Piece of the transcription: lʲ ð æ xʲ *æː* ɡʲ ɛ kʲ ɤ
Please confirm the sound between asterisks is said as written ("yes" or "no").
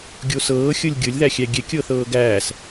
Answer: no